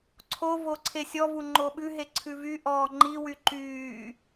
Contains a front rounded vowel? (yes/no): yes